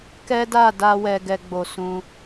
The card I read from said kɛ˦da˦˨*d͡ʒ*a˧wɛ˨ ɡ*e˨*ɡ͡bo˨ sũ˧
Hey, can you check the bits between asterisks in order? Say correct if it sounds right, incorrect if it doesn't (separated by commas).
incorrect, incorrect